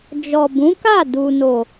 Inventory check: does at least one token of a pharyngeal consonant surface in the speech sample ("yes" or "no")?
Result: no